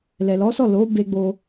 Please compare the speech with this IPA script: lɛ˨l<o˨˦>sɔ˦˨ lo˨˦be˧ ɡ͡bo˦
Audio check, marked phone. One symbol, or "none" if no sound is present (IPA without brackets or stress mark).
ɔ˨˦